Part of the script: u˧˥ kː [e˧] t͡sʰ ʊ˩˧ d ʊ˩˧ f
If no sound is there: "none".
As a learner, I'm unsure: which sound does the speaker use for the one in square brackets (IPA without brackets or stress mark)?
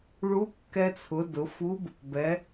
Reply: ɛ˧